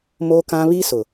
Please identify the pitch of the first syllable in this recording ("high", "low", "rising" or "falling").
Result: high